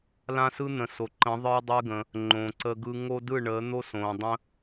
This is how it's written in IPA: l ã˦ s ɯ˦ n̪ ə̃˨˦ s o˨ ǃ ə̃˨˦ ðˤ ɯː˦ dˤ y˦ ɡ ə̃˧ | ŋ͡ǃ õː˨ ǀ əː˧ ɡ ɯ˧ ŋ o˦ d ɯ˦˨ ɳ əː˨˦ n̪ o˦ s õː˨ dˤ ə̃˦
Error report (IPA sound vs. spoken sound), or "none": none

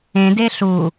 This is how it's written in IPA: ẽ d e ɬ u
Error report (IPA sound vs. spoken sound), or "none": none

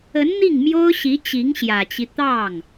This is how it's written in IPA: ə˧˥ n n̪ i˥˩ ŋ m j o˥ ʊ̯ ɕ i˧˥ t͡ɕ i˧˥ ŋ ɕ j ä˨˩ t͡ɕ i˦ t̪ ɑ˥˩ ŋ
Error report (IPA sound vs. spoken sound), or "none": none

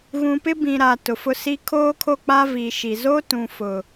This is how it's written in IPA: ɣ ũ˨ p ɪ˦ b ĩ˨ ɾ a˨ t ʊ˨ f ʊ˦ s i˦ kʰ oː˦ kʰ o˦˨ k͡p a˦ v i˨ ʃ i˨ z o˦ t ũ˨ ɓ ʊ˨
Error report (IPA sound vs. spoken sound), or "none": ɓ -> f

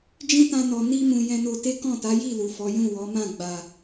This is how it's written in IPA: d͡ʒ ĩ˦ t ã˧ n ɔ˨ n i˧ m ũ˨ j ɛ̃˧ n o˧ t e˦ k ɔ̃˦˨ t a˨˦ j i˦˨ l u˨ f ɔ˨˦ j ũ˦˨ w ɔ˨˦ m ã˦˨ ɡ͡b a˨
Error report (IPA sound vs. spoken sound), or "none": none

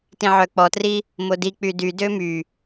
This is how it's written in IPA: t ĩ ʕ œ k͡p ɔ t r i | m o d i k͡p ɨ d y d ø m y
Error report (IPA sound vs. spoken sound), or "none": ɨ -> y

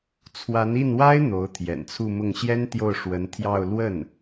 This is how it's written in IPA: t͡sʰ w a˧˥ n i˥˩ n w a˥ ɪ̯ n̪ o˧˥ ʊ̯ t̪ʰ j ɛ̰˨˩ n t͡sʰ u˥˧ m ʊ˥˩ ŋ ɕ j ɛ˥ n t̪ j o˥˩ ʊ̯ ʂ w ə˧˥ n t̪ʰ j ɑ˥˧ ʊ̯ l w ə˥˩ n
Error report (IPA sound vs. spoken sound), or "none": none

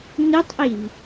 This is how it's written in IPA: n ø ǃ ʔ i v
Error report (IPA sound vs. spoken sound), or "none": ǃ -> tˤ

